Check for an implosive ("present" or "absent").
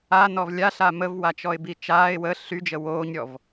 absent